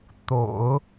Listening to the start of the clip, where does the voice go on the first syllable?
low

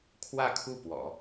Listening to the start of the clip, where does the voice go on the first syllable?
falling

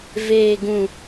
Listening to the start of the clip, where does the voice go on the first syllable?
low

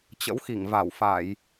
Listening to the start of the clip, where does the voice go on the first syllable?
rising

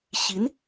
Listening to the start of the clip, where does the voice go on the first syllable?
rising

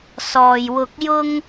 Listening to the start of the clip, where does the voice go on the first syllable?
low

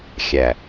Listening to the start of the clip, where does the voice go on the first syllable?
low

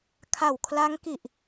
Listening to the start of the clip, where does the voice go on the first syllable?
low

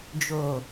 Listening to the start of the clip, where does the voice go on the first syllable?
low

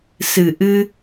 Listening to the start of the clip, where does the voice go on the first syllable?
low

